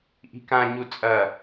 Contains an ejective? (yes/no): yes